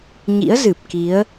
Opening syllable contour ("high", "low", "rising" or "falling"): rising